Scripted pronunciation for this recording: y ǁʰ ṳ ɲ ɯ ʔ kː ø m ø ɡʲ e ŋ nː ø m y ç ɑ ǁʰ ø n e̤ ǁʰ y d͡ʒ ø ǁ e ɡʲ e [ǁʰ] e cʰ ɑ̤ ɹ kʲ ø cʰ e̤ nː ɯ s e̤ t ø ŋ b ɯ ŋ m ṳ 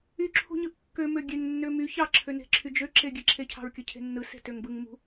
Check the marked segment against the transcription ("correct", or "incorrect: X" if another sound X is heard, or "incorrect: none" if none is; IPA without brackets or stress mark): correct